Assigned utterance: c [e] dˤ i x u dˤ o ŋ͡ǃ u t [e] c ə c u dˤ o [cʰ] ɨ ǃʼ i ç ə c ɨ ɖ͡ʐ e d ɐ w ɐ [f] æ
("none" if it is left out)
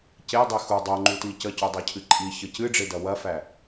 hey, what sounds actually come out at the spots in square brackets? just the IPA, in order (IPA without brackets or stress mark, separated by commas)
e, i, cʰ, f